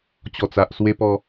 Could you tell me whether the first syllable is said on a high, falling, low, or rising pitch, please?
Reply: low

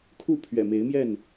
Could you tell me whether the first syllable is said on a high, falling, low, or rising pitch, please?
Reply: falling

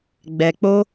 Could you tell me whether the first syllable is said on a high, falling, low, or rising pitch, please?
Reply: low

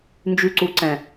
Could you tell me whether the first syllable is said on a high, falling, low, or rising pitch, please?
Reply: low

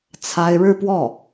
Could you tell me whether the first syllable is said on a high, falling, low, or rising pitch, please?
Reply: high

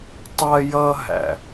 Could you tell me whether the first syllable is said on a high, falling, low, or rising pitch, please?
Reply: high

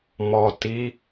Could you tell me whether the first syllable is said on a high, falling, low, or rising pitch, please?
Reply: low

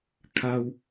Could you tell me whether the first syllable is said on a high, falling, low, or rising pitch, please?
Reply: low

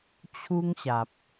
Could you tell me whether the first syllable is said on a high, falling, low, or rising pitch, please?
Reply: high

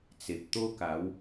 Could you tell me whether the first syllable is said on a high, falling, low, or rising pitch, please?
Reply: low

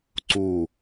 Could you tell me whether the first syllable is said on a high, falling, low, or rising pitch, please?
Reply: falling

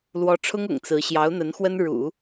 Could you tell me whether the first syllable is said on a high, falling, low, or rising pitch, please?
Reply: rising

